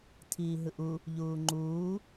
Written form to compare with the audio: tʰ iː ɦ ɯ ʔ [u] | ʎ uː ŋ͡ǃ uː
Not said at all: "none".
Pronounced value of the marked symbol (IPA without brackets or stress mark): u